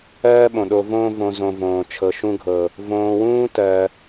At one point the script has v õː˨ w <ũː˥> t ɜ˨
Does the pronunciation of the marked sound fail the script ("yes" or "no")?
no